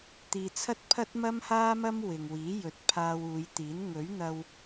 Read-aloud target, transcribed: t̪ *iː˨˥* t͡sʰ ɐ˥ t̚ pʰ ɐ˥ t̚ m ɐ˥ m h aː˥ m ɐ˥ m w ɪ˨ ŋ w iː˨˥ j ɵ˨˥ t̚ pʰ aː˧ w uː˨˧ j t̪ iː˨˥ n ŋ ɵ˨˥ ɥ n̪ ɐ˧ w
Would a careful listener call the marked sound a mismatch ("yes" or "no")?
yes